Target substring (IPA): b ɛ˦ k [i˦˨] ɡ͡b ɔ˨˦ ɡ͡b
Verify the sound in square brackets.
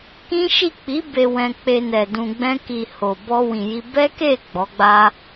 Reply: incorrect: e˦˨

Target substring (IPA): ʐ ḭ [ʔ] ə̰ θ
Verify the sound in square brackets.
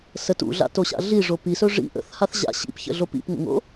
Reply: correct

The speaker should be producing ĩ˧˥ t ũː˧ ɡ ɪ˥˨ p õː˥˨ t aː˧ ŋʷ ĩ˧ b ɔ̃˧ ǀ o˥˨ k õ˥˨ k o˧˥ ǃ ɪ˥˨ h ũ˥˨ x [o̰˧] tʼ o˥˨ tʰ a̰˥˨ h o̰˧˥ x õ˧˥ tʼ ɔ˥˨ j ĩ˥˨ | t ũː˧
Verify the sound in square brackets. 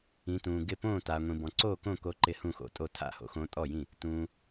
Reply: correct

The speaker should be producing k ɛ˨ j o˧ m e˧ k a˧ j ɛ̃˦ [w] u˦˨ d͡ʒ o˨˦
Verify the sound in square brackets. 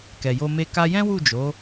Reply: correct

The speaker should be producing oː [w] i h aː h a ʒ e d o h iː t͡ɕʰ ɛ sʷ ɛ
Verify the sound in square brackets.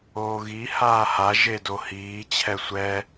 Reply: incorrect: ɣ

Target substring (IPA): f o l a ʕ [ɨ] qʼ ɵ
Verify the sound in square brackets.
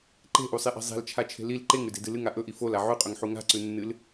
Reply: incorrect: ʉ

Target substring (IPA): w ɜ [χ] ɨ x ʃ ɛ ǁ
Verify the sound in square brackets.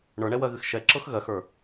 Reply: incorrect: ɣ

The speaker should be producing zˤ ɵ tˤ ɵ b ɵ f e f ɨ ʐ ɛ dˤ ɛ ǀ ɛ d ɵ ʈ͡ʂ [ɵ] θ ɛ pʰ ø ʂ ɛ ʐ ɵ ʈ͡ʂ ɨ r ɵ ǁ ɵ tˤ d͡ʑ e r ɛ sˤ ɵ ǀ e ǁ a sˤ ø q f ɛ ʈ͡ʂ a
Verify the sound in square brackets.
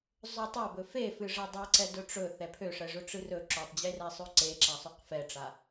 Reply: correct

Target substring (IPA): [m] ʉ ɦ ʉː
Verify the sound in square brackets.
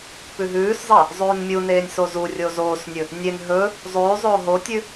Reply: incorrect: p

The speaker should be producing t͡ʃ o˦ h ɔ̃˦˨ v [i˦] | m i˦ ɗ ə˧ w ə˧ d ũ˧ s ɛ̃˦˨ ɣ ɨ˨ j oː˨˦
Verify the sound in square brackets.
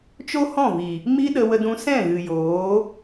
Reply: incorrect: i˨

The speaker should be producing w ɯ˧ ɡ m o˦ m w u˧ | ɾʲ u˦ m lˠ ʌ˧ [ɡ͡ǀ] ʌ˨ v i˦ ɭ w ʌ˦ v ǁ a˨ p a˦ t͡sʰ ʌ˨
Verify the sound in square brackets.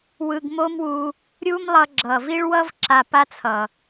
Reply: incorrect: ɡ͡ǁ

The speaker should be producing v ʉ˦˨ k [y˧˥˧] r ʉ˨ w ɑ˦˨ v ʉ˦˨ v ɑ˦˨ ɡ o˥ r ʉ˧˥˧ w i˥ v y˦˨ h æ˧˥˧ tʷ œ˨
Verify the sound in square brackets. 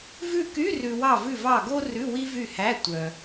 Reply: correct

